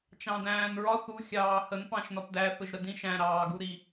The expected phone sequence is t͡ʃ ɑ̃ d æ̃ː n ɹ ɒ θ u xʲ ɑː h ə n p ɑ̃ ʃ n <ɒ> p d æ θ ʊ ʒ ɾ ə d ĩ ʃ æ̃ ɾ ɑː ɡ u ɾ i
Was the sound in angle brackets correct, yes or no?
yes